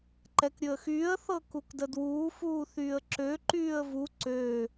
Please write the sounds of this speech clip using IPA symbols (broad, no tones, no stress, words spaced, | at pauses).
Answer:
ǃɛkɾʲɵə̯xyːə̯ θɤkukdədwuː fuːθyːə̯ǁø ǃyːə̯vu ǀø